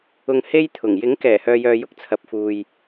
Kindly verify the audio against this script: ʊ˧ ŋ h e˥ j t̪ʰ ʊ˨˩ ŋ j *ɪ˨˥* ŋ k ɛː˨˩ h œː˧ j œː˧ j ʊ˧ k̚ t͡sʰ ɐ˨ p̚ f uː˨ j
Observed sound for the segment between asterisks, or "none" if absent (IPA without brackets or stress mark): ɪ˨˥